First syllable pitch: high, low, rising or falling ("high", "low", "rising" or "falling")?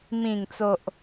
low